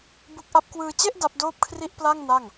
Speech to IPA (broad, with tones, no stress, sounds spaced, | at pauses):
b u˦˥ k̚ ʔ a˦˥ p̚ k w ɯː˧ t͡ɕ e˥˩ ʔ d a˦˥ p̚ d oː˥˩ p̚ kʰ r i˥˩ ʔ p l a˥˩ ŋ n a˥˩ ŋ